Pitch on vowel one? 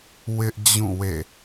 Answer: high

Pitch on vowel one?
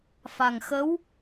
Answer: low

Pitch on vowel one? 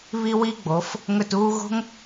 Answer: high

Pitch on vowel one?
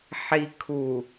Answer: low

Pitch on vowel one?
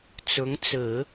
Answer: rising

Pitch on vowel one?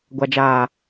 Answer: low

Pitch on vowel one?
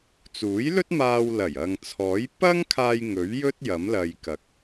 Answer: rising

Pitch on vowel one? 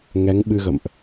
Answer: rising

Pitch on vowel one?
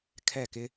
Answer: falling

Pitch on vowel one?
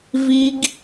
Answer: high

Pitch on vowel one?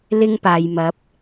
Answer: high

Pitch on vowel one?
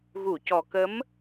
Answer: low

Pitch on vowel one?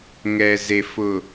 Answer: low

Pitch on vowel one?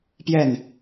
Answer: falling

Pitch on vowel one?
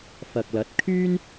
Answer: low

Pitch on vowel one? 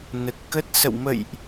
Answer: low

